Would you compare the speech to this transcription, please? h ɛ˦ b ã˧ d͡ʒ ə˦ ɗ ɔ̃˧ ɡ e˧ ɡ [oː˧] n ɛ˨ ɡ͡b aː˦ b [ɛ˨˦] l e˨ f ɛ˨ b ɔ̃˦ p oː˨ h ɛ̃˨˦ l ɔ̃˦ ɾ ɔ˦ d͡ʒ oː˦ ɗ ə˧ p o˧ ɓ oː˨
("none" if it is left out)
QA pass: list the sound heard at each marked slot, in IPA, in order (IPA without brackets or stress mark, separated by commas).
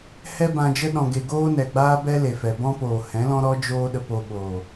oː˦, ɛ˦